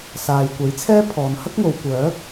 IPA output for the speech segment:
s aː˨ j kʷ ɐ˨˥ j t͡sʰ ɛː˥ pʰ ɔː˨ n h ɐ˥ k̚ ŋ o˨ w kʷ œː˨˥ k̚

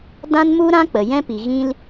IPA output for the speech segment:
d ã˦ n m u˦ ɾ ã˦ k͡p ə˨ j ɛ̃˦ p i˨ ɣ ĩ˧ l

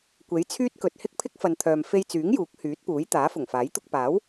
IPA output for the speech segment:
kʷ e˨˥ j t͡sʰ yː˥ t̚ k ɵ˨ t̚ h ɪ˥ k̚ pʰ ɪ˥ k̚ f ɐ˨ n t̪ʰ œː˨ m f e˧ j t͡s yː˨˥ ŋ j uː˨˥ k̚ h yː˨˥ t̚ p uː˨˥ j t̪ aː˨˥ f ʊ˨˩ ŋ f aː˨˥ j t̪ ʊ˧ k̚ p aː˨˥ w

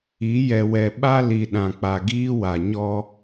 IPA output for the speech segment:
i˨˦ j ɛ˨ w ɛ˨ ɓ a˦ l i˨ ɗ ã˨ k͡p a˨ ɡ iː˦ w a˨ ɲ ɔ˦

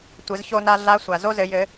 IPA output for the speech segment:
tʷ ɘ˩˧ z ç o˧ n a˧ ɮ a˧˥ sʷ a˩ z o˥ z ɘ˩˧ j ɘ˩˧

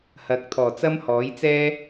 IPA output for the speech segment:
h ɐ˨˥ k̚ t̪ʰ ɔː˨˩ t͡s ɐ˥ m h ɔː˨˥ j t͡s ɛː˥

